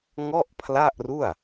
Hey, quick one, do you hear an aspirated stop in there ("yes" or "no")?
yes